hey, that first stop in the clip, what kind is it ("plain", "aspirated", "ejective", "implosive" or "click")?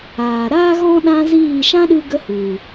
implosive